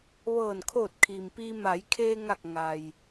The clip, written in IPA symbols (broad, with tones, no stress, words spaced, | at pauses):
ʋɤː˧˩nkʰoː˧˩t̚kʰiː˩mpiː˧ ma˩˧jkʰeː˧ŋa˧˩k̚ ŋa˩j